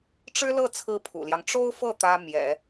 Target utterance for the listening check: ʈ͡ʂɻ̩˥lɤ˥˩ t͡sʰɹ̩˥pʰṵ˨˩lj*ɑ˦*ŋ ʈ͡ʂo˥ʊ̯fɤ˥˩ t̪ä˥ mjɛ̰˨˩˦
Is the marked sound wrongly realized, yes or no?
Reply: no